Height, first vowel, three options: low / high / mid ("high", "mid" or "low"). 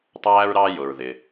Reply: low